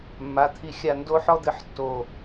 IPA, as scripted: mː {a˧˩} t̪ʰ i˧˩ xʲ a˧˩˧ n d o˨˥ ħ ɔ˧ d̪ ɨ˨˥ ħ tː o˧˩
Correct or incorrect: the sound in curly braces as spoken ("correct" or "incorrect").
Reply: incorrect